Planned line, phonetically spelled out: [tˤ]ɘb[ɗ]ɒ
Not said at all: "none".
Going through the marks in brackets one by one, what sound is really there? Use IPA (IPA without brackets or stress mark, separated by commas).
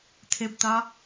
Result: tʰ, t